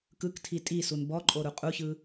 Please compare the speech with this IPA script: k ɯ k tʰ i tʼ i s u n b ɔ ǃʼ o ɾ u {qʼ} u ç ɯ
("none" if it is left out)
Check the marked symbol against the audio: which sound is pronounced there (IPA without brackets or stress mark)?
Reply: qʼ